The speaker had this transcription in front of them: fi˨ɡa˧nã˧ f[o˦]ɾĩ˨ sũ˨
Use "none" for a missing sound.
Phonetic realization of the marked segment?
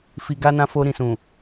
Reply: o˧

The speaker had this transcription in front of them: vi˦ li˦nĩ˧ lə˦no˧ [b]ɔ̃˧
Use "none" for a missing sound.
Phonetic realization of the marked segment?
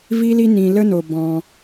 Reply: b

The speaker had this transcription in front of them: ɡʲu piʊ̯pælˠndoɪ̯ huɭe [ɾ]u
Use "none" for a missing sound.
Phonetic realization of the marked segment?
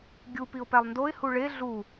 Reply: ɮ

